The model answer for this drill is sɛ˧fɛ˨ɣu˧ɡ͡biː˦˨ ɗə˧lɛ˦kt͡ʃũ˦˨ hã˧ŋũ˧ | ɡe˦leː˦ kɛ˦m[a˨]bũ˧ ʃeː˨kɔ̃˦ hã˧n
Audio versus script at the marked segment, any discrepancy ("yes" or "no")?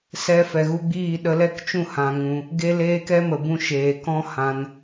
yes